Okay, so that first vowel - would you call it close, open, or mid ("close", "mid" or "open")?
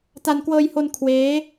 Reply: open